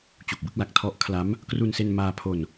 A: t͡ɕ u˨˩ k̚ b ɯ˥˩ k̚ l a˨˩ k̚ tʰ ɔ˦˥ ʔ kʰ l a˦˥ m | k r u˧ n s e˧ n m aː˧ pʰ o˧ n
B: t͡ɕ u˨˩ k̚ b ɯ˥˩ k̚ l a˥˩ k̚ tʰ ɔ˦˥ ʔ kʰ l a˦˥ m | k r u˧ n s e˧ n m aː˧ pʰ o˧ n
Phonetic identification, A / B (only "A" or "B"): A